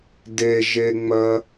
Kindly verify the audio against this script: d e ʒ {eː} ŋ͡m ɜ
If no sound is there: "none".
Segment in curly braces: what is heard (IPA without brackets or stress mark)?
e